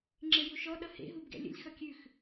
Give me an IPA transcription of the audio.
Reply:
ŋ͡ǁ e j u ʃ ɔ ɗ ʌ h ḛ ɦ u b ɡ ɛ̰ lʲ ə̰ lʲ x ʌ kʲ ʉ x

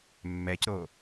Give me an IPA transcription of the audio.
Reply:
mː ɛ c ɾ o

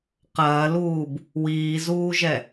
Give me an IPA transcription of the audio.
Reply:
q ɐː l uː b | w iː z uː ʒ ɛ

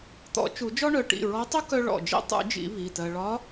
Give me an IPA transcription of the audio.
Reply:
t̪ ɔ̰˨˩˦ t͡ʃ u˨˩˦ d͡ʒ ɔ˥ ɳ œ˩˧˩ ʈ ḭ˩˧˩ ɹ ɔ˧˥ tˤ u˥ k œ˥ ɭ ɔ̰˩˧˩ d͡ʒ ḭ˥ tˤ ṵ˨˩˦ d͡ʒ ḭ˨˩˦ β i˩˧˩ t ɜ˧ ɭ ɒ˧˥

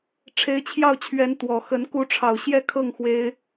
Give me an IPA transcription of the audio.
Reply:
ʈ͡ʂʰ e˧˥ ɪ̯ t͡ɕʰ j ɑ˥˩ ʊ̯ t͡ɕʰ ɥ ɛ˧˥ n t̪ w ɔ˨˩ x ə˧˥ n k u˧˥ ʈ͡ʂʰ ɑ˨˩ ʊ̯ ɕ j ɛ˥˧ kʰ ɤ˥˩ ŋ x w e˥ ɪ̯

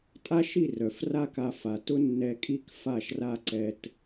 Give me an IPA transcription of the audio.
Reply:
tʼ a˦ ʃ i˦˨ r œ˨ f r a˦ k a˧ f a˨ t ʊ˦ nː ɛ˧ kʼ i˦ k f a˦˨ ʃ r a˦ ǀ ɛ˧ t

